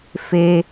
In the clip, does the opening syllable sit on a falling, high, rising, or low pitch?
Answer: high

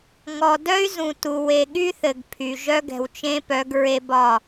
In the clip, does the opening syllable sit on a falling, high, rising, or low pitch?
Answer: low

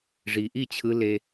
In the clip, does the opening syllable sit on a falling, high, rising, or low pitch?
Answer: low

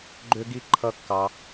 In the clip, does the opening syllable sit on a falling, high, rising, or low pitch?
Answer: high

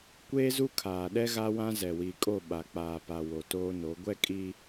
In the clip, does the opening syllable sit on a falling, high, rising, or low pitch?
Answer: high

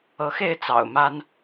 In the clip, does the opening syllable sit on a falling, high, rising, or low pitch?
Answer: rising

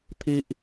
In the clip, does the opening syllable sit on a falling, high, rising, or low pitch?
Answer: high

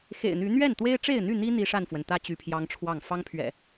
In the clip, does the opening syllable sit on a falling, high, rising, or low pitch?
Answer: low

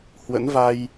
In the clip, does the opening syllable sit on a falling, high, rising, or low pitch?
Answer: rising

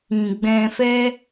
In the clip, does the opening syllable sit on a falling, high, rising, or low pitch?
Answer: low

